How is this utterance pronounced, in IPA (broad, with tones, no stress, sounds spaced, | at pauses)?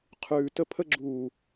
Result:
qʰ ʉː˨ t ə˧ pʰ ə˧ ɡ͡ǁ uː˨